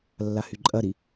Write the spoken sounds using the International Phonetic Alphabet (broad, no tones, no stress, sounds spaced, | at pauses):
lː a h y ǃʼ ɐ ɾ i